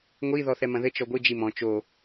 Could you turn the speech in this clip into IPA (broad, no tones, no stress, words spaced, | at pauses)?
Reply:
ŋʷi ðɔθɛmɐ̃ðɘ t͡ʃɔɡʷɨ d͡ʒimɔ̃ t͡ʃo